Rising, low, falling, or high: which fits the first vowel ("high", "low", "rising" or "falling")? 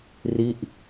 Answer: falling